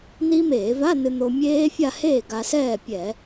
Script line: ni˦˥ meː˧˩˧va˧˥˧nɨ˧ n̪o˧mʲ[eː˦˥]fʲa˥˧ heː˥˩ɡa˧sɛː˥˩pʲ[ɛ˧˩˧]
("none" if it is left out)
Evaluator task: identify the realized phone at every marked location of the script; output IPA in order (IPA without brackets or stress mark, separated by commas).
eː˦˥, ɛ˧˩˧